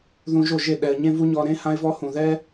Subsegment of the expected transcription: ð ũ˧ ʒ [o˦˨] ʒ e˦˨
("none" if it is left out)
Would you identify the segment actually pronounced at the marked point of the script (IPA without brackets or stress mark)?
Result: o˦˨